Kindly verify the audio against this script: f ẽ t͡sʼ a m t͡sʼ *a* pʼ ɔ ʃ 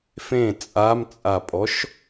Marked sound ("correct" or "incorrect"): correct